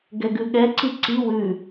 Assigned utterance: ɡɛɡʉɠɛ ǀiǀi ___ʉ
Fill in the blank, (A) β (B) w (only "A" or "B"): B